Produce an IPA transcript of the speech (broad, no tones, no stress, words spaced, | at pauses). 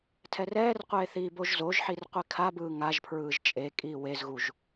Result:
tʰɛrɛːrqʷeːθiː boʒzoʒħir qʷikʰabɯː ŋaʒ pʰɹɯːʒt͡ʃʼe kʼiːwezɣuʒ